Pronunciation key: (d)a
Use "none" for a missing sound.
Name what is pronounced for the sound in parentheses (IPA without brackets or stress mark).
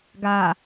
ɡ